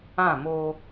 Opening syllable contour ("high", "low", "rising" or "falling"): falling